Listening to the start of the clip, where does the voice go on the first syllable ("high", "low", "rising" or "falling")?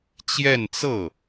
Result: falling